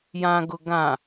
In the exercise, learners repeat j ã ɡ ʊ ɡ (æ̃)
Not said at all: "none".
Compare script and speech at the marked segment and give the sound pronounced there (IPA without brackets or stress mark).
ã